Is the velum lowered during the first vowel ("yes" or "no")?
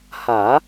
no